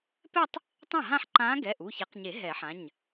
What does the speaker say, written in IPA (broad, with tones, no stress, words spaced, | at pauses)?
pɛ˥˧tˤ | tˤã˥˩ɦã˥˧ħǃãː˧˥ ɡɛ˩˧˩ʔu˩˧˩ ça˨˩˦qɲe˨˩˦ ɦɛ˨˩˦ħã˩˧˩ɲ